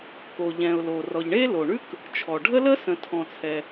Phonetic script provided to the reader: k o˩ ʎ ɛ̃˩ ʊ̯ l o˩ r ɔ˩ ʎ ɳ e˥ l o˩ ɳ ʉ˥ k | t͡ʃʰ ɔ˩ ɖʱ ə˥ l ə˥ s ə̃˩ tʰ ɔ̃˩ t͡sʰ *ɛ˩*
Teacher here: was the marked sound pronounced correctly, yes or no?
yes